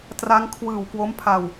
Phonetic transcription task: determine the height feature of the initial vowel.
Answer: low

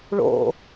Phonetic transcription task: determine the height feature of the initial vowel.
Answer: mid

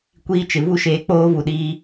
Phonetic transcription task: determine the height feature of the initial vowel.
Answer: high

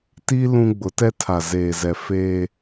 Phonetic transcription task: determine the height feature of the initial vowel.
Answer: high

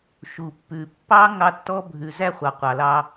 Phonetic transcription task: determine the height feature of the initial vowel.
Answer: high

